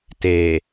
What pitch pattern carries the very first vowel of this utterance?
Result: low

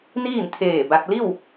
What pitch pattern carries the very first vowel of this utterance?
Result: falling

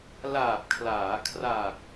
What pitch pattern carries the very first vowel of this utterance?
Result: low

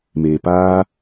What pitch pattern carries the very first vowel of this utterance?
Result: low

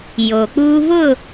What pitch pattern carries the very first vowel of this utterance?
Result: low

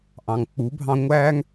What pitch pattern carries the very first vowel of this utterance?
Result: low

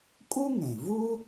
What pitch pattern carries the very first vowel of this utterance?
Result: high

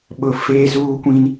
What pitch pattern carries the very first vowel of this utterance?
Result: low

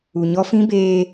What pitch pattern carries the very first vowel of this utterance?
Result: low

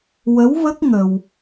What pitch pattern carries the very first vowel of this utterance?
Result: rising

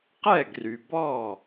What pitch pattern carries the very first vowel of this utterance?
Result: falling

